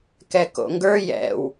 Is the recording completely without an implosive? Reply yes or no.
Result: yes